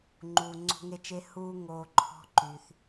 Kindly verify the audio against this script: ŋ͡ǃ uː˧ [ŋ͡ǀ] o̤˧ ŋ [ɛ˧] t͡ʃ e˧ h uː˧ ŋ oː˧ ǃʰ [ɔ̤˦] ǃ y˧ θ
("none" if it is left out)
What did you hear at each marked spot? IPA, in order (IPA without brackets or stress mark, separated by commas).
ŋ͡ǀ, e˧, ɔ̤˦